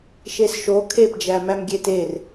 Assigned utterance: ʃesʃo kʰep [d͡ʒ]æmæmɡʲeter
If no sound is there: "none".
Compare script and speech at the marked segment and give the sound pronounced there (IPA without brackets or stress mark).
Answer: d͡ʒ